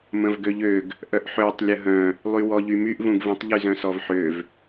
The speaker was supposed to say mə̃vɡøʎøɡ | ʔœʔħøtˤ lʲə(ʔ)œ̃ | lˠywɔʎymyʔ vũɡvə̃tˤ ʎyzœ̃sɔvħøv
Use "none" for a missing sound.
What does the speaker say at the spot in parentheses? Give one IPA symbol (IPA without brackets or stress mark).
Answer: ɦ